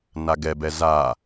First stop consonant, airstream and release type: plain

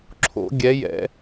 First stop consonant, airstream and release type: click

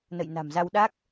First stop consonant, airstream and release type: implosive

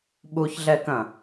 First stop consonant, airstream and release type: implosive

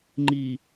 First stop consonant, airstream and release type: click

